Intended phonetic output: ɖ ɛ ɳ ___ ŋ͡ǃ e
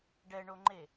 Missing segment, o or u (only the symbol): o